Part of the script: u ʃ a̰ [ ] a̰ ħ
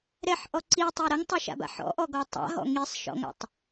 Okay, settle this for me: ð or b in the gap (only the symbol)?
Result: b